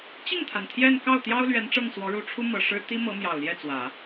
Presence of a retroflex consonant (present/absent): present